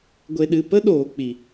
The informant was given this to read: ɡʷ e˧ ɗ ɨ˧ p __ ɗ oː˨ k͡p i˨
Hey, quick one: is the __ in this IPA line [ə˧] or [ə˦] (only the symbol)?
ə˦